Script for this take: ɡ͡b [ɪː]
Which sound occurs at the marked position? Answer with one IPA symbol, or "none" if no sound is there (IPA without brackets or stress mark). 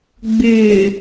ɪː